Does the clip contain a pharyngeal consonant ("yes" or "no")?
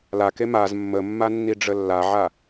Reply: yes